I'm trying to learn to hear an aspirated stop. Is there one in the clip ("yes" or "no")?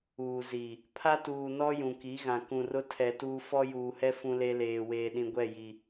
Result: yes